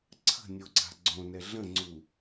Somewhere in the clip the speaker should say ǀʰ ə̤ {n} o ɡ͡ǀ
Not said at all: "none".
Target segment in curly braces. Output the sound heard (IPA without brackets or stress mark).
nʲ